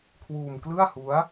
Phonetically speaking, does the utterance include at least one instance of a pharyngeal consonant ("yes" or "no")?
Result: no